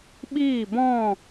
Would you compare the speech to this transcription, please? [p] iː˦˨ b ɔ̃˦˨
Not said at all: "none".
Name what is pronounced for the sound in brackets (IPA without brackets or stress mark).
ɓ